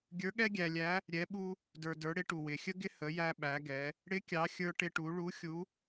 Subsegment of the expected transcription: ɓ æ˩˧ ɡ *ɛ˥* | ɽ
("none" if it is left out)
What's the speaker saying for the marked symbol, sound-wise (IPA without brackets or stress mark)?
ɛ˩˧